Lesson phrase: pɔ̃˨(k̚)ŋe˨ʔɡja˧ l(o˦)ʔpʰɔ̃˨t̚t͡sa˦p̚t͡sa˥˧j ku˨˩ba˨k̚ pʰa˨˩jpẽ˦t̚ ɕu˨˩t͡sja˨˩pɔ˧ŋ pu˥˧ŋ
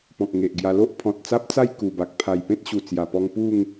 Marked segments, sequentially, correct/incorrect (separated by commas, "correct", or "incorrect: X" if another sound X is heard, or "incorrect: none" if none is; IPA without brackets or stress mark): correct, correct